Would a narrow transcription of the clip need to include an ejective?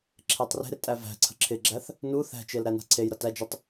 yes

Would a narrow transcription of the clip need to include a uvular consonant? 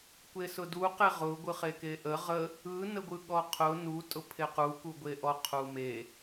yes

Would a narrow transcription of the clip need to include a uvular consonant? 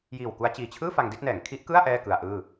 no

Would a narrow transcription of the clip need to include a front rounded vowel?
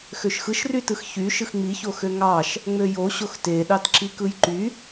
yes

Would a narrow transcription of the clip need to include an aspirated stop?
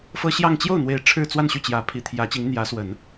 yes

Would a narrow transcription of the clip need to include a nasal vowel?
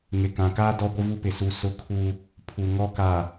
yes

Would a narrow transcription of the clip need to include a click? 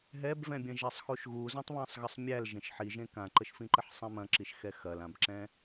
yes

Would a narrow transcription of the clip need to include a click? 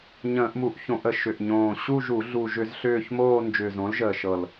no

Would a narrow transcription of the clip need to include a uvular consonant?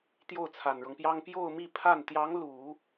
no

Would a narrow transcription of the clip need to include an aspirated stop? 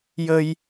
no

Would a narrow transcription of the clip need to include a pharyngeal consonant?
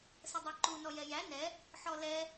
yes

